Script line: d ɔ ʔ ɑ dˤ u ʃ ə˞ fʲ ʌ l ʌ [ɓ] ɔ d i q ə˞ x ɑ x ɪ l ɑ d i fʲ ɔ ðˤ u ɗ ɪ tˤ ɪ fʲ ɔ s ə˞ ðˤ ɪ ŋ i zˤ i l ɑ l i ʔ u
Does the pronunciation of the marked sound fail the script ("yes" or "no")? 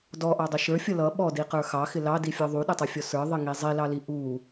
no